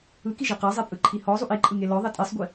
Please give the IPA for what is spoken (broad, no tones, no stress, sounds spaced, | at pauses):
ɯ k i ʒ i q a zˤ e pʼ ɯ ǃʰ i h ɔ zˤ u ʔ i ǃʼ ɯ ŋ e l ɔ ðˤ e tʼ e sˤ ɡʷ i